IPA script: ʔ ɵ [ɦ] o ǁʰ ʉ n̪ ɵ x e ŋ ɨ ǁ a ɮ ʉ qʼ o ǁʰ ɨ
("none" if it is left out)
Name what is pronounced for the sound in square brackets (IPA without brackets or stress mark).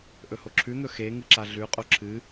h